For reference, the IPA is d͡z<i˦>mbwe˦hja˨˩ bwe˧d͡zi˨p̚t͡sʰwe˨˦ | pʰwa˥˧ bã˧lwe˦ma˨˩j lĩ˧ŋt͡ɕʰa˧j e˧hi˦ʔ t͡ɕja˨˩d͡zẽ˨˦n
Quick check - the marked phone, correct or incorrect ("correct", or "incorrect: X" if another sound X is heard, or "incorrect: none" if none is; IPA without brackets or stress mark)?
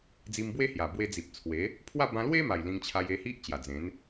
incorrect: i˧